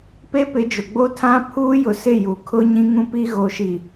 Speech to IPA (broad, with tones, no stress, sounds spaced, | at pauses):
p e˦ p ɪ˨˦ d͡ʒ ʊ˨ ɡ͡b o˦ tʰ ã˦ pʰ uː˦ j ʊ˨ s ɪ˦˨ j u˨ kʰ ʊ˦ ɲ ĩ˦ ŋ ũ˦ p i˦ ɣ o˨ ʃ i˨